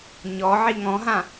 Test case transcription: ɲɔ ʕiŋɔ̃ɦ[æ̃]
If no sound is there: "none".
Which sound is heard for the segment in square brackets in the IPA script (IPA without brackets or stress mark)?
ã